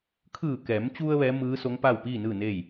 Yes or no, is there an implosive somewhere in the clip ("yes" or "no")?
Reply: no